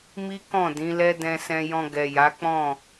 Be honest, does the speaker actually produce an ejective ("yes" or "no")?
no